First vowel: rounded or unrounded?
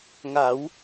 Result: unrounded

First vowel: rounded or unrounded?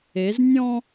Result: unrounded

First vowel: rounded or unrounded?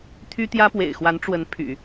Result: rounded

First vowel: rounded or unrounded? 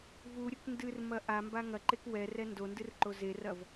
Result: rounded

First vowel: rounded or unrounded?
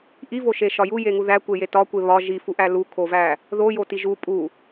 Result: unrounded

